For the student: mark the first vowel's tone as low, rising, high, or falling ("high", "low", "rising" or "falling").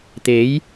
rising